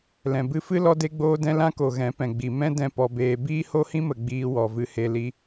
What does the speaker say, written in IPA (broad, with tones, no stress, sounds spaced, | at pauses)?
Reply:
l ɛ̃˨ b ɨ˧ f ɨ˦ l ɔ˧ d e˧ ɡ͡b oː˧ d ɛ̃˧ l ã˦ k o˨ ɣ ɛ̃˨˦ p ɛ̃˨ ɡ͡b i˨ m ɛ̃˦ d ɛ̃˧ p ɔ˨ b eː˨ b iː˦ h o˦ h ĩ˦ m ə˨ ɡ͡b iː˧ w ɔ˨ v ɨ˧ h e˧ l i˦